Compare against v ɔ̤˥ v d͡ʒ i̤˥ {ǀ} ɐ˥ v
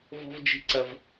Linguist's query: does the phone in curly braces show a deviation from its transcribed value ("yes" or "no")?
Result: no